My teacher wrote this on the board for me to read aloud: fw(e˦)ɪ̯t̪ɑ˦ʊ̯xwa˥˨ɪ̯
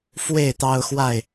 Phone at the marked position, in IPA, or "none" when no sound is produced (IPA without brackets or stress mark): e˥˨